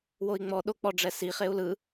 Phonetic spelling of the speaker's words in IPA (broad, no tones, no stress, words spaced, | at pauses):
woi̯ŋ͡mɔɗo k͡pɔɖ͡ʐɛsiχeu̯ lɯ